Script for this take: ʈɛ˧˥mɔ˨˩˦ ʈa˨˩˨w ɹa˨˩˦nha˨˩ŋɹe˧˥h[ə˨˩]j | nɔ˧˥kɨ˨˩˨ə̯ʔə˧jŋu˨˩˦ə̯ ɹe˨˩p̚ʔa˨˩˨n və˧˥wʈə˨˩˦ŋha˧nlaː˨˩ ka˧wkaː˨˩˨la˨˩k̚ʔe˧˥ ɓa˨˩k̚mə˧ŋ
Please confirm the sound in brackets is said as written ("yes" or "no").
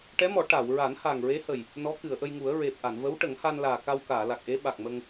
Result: yes